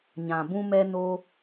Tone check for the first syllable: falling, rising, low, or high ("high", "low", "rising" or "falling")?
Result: low